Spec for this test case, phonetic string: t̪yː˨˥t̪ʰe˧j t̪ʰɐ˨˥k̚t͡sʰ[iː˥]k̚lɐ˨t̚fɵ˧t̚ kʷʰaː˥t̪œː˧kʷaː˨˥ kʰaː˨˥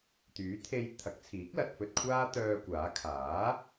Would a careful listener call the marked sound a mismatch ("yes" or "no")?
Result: yes